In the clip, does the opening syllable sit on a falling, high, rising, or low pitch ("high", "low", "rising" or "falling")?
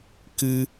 high